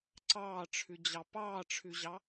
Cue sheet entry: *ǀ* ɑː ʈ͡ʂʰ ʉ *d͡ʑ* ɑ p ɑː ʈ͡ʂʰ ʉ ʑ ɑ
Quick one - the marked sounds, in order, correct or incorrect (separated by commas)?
correct, correct